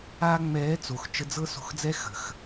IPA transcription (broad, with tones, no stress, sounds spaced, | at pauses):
aː˧ ŋ͡m ɛː˨˦ t͡s o˨ x t͡ʃ ə˧ d͡z ɤ˦ s o̤˧ x d͡z ɛ˦ x ə̤˨ x